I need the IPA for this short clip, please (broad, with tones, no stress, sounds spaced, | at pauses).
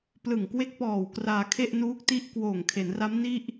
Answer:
p l ɯ˨˩ ŋ k w e˦˥ k̚ p ɔː˨˩ w k r aː˧ kʰ e˥˩ ʔ n uː˦˥ k̚ t i˥˩ ʔ k w oː˨˩ ŋ kʰ e˩˦ n r a˦˥ m n i˥˩ ʔ